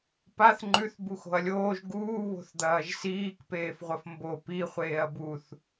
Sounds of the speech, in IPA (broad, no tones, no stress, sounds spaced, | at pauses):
p a θ ŋ͡ǃ ʉ θ b u x o̤ ɐ̯ lʲ oː ʒ ɡ uː β o̤ θ d̪ ɐː ʒ s iː k p eː f ʁʷ ɐ f m b o p i χʷ eː ɐ̯ b u θ